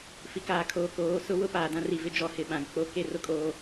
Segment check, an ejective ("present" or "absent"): present